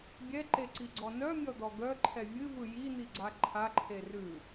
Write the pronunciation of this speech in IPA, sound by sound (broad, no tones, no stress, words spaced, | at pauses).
bʲɛǃeǀiɡ͡ǀɔ nœmʲɔd̪ɔ ɡœǃʰɛ vʲɨvɯ jin̪iɡ͡ǀa ǃʰaǃʰe rʉ